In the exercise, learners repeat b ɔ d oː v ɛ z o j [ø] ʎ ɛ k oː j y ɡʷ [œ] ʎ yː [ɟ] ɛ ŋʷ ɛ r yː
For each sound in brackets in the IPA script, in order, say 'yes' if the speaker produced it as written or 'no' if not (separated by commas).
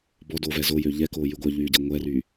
yes, yes, yes